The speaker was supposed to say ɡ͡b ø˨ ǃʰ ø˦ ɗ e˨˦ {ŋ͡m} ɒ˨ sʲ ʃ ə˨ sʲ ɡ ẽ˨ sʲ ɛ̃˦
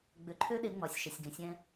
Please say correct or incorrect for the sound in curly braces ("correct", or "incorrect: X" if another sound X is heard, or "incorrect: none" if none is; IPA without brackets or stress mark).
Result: correct